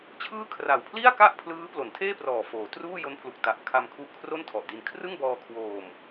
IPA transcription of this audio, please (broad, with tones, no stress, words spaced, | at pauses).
t͡ɕʰɯː˥˩ kʰra˨˩wpʰli˥˩a̯ka˥˩ʔ pʰlɯː˦˥plo˩˦ntʰeː˥˩prɔː˨˩ foː˩˦ truː˥˩ jo˦˥npʰlu˨˩k̚ ta˨˩ʔ kʰa˧mkʰu˦˥ʔkʰro˥˩n tʰɔ˨˩ʔdi˧n kʰrɯ˥˩ŋbɔː˧ kʰwoː˧m